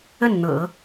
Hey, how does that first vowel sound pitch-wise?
falling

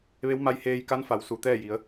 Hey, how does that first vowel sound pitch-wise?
rising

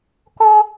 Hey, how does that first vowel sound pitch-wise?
high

